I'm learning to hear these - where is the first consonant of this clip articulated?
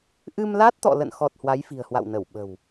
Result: throat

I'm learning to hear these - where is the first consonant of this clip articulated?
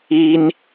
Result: tongue tip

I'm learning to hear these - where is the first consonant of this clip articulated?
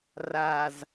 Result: tongue tip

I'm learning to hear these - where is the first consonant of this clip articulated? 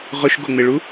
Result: uvula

